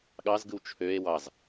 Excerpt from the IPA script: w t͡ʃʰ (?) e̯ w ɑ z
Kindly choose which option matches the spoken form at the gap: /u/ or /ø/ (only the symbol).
ø